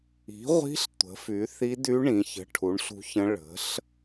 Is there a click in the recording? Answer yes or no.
no